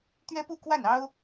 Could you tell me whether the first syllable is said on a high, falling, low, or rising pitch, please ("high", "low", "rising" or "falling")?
high